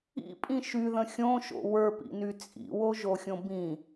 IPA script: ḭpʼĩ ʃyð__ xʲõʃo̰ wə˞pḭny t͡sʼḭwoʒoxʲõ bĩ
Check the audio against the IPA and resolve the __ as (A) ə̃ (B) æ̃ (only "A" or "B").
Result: A